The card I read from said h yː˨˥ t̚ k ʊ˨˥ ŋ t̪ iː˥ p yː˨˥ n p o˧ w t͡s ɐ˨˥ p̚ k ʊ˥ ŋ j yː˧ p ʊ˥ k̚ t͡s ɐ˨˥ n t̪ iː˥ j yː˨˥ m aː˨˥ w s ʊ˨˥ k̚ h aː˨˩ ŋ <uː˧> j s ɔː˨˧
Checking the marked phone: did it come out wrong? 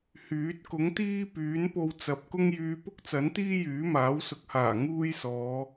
yes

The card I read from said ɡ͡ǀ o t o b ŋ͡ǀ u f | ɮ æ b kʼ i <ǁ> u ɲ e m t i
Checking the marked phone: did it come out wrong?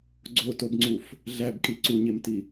yes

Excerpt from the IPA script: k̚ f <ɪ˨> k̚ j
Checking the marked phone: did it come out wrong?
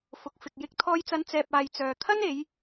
no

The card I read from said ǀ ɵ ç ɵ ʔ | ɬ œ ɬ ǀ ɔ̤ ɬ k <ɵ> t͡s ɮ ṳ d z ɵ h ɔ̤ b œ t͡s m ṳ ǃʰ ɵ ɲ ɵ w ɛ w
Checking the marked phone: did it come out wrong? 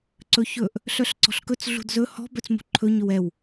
no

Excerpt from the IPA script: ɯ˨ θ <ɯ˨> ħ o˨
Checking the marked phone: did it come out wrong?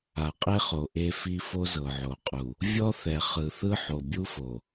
yes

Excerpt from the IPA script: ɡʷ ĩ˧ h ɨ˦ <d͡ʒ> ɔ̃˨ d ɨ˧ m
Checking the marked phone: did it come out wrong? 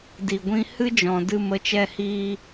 no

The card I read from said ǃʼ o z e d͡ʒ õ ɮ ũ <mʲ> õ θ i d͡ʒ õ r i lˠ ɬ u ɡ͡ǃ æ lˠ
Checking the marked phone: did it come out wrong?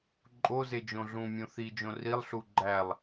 no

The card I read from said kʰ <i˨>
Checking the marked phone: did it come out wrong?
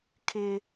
yes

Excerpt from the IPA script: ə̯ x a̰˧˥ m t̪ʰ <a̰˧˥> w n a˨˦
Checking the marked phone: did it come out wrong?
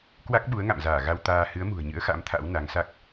no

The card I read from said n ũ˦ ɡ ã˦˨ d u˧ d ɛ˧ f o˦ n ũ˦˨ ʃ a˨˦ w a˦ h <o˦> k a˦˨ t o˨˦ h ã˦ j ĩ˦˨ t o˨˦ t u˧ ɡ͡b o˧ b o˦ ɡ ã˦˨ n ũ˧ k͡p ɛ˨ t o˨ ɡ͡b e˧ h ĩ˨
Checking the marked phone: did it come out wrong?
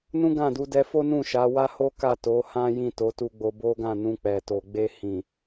no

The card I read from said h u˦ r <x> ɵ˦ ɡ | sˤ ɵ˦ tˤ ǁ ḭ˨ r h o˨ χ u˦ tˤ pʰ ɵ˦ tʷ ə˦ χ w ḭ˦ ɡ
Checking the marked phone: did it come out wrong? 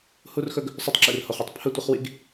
no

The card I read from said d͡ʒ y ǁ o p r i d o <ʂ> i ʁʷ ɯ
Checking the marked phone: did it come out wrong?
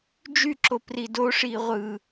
no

